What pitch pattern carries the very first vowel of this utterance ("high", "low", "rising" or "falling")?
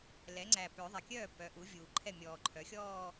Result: rising